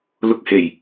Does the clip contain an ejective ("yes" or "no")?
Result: no